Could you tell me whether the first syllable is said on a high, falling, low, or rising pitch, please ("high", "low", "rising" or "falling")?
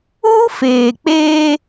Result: high